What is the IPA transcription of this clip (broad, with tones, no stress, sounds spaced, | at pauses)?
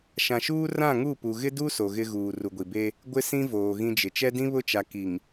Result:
ʃ ã˨ ʃ uː˦ r ã˦˨ ŋ u˦˨ p u˨ ɣ ɪ˦ d u˦ s o˨ ɣ ɪ˦ ɣ uː˨ r u˨ ɡʷ i˨ b e˦ | ɡʷ ɪ˦ s ĩ˦ v oː˨ ɣ ĩ˦ d͡ʒ ɪ˨ t͡ʃ ɛ˦ d ĩ˦ β ʊ˦ t͡ʃ a˨ k i˨ ŋ